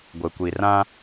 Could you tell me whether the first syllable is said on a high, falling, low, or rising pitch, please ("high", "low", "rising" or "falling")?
low